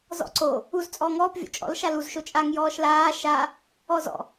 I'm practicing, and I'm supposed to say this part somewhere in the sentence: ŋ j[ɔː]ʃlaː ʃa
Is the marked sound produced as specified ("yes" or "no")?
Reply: yes